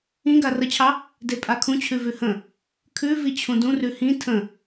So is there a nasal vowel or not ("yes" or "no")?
yes